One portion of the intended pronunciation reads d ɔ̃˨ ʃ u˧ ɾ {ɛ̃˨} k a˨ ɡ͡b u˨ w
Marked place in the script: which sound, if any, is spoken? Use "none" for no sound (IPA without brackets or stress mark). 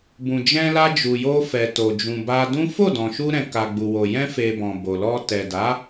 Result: ɛ̃˨